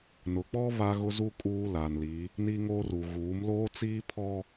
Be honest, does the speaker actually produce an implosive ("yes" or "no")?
no